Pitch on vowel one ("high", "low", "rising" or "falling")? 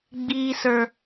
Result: high